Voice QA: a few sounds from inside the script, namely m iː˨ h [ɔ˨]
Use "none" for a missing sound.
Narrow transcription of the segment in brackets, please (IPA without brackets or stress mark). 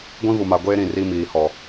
ɔ˨